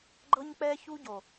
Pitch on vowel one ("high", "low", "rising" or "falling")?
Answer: high